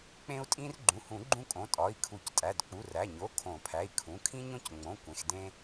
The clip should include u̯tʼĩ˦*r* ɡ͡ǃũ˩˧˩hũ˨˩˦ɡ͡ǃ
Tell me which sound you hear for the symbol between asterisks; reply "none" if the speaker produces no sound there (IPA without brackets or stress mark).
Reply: r